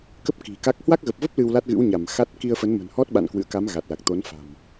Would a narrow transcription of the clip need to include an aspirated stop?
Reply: no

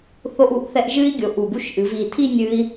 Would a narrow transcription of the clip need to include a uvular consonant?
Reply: no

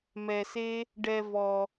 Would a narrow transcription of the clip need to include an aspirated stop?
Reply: no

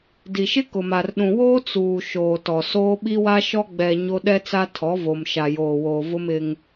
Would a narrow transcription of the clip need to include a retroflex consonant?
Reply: no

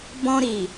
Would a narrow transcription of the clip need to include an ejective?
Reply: no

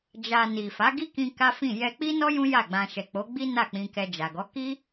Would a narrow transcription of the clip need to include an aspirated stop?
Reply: no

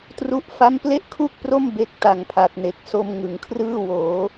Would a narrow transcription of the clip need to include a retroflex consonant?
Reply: no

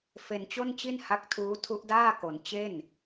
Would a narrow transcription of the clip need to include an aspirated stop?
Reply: yes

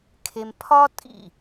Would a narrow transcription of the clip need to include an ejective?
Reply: yes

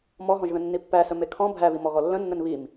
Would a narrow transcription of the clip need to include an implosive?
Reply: no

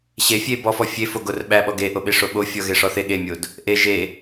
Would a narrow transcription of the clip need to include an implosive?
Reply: yes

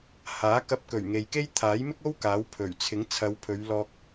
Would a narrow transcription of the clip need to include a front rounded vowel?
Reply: no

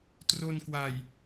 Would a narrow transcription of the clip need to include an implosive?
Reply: no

